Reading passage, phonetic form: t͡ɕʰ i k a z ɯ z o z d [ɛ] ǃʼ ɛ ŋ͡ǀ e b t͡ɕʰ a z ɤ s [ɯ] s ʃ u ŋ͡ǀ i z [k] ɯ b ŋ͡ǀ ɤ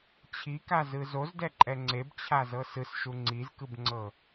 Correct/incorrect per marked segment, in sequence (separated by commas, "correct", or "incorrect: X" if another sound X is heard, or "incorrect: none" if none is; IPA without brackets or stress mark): correct, correct, correct